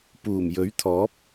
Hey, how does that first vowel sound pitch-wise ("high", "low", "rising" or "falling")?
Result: low